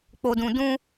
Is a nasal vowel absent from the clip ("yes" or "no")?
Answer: no